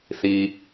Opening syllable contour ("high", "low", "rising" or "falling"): low